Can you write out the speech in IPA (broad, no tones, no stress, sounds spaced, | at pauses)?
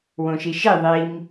w õ ʃ i ʃ i ðˤ i m